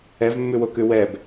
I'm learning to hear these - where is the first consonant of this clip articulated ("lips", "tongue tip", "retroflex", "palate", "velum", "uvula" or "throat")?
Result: lips